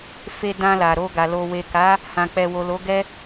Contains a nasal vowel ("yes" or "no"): yes